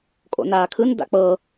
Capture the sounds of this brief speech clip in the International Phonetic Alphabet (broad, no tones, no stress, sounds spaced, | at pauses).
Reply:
kʼ o̰ n aː kʰ ɯ n d a̰ k͡p ɤ